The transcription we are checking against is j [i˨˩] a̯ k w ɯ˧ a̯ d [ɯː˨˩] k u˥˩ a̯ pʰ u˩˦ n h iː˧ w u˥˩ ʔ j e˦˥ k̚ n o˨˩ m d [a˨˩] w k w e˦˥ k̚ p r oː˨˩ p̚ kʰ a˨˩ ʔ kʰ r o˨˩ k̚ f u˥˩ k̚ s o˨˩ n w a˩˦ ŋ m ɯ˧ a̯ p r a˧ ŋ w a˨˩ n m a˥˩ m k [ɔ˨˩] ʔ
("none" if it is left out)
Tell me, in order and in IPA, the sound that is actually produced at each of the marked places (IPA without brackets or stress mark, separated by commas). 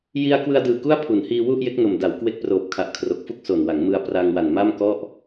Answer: i˧, ɯː˨˩, a˩˦, ɔ˥˩